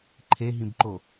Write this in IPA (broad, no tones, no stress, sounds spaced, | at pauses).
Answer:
ǃʰ e ɦ ĩ b ǃ o